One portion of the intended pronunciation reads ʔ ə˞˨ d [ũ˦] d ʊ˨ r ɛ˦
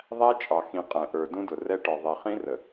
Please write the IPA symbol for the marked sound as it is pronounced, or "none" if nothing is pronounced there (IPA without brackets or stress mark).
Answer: ũ˦